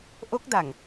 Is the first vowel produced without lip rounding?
no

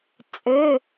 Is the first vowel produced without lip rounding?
no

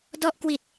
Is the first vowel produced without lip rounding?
no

